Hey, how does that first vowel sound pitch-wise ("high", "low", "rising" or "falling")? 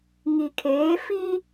low